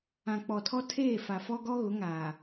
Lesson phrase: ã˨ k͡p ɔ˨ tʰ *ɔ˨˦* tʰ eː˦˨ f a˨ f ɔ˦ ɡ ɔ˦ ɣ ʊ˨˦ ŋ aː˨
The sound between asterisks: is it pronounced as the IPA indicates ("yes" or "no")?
no